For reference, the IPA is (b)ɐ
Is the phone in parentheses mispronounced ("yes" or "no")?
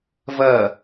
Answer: yes